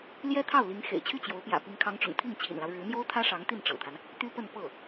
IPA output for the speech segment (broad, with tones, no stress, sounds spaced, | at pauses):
l j ɛ˥ t̪ʰ ɑ˥˩ ʊ̯ l i˧˥ ŋ x ḛ˨˩ ɪ̯ t͡ɕʰ y˥˩ t͡ɕ j o˧˥ ʊ̯ p j ä̰˨˩ p i˧˥ ŋ kʰ ɑ˧˥ ŋ ʈ͡ʂ ʊ̰˨˩ ŋ t̪ʰ i˥˩ ŋ t͡ɕʰ ḭ˨˩ n l ɑ˦ ʊ̯ ɻ ɻ̩˧˥ n̪ j o˥ ʊ̯ t̪ʰ ä˥ ʂ ɑ˧˥ ŋ t̪ i˥˩ n ʈ͡ʂ ɤ̰˨˩ t̪ʰ a˦ n | t̪ y˥ p ə˥˧ n p ɤ˥˩